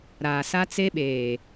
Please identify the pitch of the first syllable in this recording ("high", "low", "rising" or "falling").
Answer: low